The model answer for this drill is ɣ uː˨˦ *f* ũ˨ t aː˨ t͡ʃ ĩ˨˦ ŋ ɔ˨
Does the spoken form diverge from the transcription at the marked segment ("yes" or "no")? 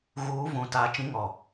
yes